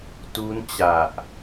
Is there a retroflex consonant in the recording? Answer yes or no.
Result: no